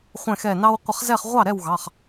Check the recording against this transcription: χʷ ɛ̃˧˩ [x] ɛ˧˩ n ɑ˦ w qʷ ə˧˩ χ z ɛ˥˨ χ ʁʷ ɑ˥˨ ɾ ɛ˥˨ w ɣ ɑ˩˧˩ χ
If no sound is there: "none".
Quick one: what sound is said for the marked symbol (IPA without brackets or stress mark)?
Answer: x